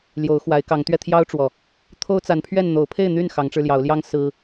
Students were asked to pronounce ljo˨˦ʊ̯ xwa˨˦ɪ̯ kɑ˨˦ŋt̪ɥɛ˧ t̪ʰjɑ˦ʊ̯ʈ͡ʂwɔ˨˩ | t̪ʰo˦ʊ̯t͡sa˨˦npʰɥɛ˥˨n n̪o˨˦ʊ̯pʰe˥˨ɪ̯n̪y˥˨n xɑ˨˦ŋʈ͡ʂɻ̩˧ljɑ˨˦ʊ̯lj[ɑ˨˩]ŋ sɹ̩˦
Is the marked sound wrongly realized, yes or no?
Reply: yes